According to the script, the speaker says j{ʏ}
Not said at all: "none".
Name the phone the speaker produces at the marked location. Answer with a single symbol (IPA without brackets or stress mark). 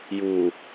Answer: u